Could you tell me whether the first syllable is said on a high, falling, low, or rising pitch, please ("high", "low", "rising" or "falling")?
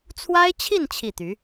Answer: high